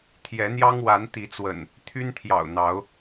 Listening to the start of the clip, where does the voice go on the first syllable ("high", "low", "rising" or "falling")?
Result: rising